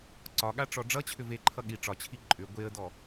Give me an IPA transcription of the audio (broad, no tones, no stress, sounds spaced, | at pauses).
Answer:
ǀ ɒ ɠ a ʈ͡ʂ ɔ ɖ͡ʐ ʌ t͡ɕʰ ʏ v e ǃʰ ʌ ɠ i ʈ͡ʂ ɒ t͡ɕʰ i ǃʼ ʏ ɡʷ e ə̯ d ɔ